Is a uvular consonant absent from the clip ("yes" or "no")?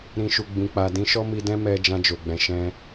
yes